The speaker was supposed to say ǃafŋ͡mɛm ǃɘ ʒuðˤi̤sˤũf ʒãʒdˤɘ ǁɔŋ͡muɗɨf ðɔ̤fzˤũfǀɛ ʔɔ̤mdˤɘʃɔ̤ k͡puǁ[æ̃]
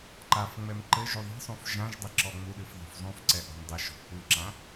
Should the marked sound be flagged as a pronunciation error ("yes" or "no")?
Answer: yes